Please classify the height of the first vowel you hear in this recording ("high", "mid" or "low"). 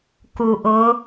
high